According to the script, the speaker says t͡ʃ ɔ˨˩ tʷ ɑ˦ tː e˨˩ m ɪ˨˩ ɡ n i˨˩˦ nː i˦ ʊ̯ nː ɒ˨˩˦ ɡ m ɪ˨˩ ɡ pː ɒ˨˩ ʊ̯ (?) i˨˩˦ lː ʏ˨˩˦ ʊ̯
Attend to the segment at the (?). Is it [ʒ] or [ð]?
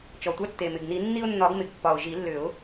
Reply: ʒ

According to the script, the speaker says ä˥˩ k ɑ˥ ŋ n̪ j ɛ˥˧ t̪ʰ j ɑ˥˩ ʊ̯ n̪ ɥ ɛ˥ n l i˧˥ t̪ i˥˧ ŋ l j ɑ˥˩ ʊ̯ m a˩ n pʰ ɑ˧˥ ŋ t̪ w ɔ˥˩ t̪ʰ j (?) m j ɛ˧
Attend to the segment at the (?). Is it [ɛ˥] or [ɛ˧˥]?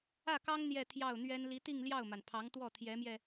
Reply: ɛ˧˥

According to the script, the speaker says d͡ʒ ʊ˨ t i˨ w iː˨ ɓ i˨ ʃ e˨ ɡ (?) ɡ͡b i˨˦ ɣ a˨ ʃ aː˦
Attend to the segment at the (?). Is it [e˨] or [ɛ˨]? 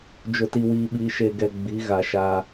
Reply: ɛ˨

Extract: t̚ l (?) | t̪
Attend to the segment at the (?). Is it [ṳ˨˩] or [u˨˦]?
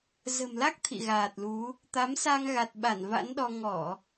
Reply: u˨˦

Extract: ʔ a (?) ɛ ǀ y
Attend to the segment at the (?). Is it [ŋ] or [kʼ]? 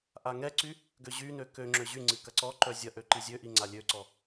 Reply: ŋ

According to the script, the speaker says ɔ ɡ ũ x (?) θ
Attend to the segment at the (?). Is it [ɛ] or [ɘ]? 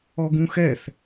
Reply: ɛ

